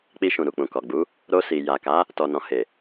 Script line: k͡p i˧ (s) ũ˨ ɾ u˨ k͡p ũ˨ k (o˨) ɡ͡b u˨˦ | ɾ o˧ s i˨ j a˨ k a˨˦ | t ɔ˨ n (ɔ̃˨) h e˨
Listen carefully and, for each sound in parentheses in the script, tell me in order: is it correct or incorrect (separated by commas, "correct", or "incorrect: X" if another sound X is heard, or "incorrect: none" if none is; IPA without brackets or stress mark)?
incorrect: ʃ, incorrect: ɔ˨, correct